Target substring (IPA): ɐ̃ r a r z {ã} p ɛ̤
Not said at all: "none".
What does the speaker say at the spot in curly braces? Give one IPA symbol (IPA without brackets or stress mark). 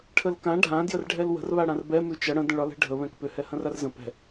ə̃